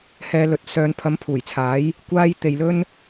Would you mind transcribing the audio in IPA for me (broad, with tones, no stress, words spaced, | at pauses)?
hɛː˧lɵ˨t̚ sœː˨n pʰɐ˨˥mpʰuː˨˩jt͡sʰaː˨˥j | kʷaː˧j t̪e˨jlɵ˥n